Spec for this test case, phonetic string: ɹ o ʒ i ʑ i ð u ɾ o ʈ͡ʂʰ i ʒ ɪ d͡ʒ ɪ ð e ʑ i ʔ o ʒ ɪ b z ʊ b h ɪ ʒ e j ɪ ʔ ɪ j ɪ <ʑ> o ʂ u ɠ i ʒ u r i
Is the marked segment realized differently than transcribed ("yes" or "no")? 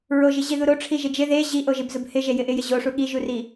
no